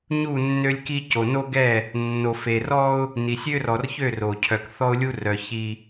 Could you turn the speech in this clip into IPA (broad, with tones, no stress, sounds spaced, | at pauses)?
ɲ u˦˨ nː ø˦ lʲ k i˦ c o˨ n o˦ ɡ ɛ˦˨ | nː o˨ f e˨ r ɔ˦ ʊ̯ | n i˨ sʲ ø˦ r ɔ˨ r ç ø˦˨ r o˨ cʰ œ˨ k θ ɔ˦ ʊ̯ lʲ u˦ r œ˨ ç i˦